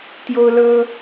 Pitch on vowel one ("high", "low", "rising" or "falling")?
high